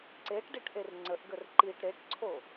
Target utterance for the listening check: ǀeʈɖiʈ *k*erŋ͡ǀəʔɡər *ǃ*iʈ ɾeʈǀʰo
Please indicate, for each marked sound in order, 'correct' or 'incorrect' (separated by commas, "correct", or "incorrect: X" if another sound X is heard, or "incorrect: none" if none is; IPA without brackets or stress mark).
incorrect: ʔ, correct